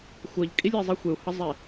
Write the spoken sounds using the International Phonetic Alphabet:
xʷ ʌ ʎ kʼ i lʲ e zˤ i xʷ e u̯ h ʌ zˤ e

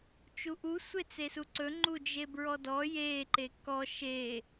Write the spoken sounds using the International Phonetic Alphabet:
t͡ʃ u ʔ u sʷ e t͡s e s u ǀ ɵ ŋ͡ǃ u d͡ʒ e b ɹ ɔ d ɔ j e ǃ e k ɔ ʃ e

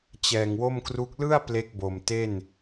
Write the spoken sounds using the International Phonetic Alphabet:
t͡ɕ ɛː˨˩ ŋ w o˥˩ m k r u˦˥ k̚ l ɯ˥˩ a̯ p l e˦˥ k̚ b o˨˩ m t e˥˩ n

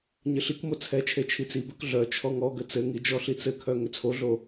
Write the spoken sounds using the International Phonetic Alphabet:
ɲ ɘ ɬ i k m o t͡sʰ ɛ t͡ʃʰ e t͡ʃʰ i t͡s i b œ k ɮ œ t͡ʃʰ ɔ ŋ ɔ ɡ ə t͡s ɘ ŋ i d͡ʒ ɔ ɬ i t͡s ɘ kʰ œ ŋ ʏ t͡sʰ o ɮ o

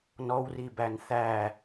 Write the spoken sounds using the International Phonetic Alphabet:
n ɔ w r i b æ n θ æ

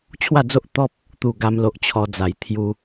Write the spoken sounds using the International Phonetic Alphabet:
t͡ɕʰ w a˥˧ d͡z o˦ ʔ t̪ ɔ˦ p̚ | t̪ u˥˧ ɡ a˦ m l o˦ ʔ t͡ɕʰ ɔ˧ d͡z a˨˩ j t̪ʰ j u˦

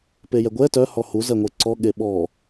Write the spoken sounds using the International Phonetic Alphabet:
p e j ɛ ɡʷ ɛ t œ h ɔ h u z ɜ ŋʷ e ǀ ɔ ɠ e ɓ ɔ

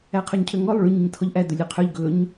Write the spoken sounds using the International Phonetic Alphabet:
æ qʰ ø ɲ cʰ ø ŋ ɔ lˠ ɭ ʉ ɲ i ɲ tʰ ɔ ʎ ʔ æ d ɵ lʲ ʉ qʰ ø ʎ ɡ ɵ ɲ

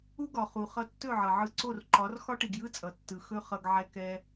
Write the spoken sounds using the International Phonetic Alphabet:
u˥ ɡ ɒ˩ χ u˩ χ ʌ˧ tː ɵ˥˩ ʕ ʌ˩ ʕ ɯ˧ ǀ o˥˩ r ǃ ɒ˩˥ r x ɒ˥ ʈ i˩ ɡ j ɯ˥ t͡sʼ ʌ˩ tː ɯ˩ x ɵ˥ χ ʌ˧ ɡ ʕ ɛ˧ k ɛ˧

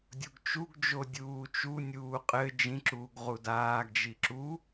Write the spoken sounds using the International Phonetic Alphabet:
dʲ o ɡ t͡ʃ u ɡ d͡ʒ o dʲ uː t͡ʃ u nʲ uː qʼ ɘ d͡ʒ ĩ ǁ uː ɡ ʁ u d aː ɡ d͡ʒ i ǁ u

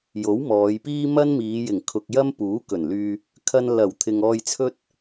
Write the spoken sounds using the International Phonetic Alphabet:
j o˨˥ w m ɔː˨˧ j p iː˥ m ɐ˥ n m iː˨˧ j ɪ˨˩ ŋ kʰ ʊ˨ k̚ j ɐ˥ m p uː˨˥ k ɵ˨˩ n l yː˧ | kʰ ɐ˨ n l ɐ˨˩ w t̪ʰ ɪ˨ ŋ ɔː˧ j t͡sʰ ɵ˥ t̚

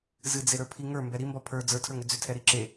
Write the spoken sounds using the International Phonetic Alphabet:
z ɨ d͡z e ɾ ə˞ pʰ i ŋ ə˞ m b ɛ ɾ i m b ɒ pʰ ə˞ d͡z ə˞ tʰ ə˞ ŋ ʏ d͡z ʏ tʰ ɛ ɾ i ǁ e

